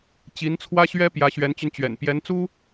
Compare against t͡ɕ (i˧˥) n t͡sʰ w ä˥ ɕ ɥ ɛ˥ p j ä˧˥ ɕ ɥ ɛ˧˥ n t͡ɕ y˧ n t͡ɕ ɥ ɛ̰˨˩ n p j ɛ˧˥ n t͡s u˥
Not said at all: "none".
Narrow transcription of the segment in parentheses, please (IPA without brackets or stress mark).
i˧˥